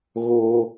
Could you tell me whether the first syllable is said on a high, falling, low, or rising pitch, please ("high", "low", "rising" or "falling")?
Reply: high